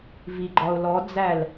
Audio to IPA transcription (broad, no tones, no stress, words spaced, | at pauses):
viɡ͡ǃɒʊ̯lɔd͡zæl